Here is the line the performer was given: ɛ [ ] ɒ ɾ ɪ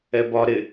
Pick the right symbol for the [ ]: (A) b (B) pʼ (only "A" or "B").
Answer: A